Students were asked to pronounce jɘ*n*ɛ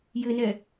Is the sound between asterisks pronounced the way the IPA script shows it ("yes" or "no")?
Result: yes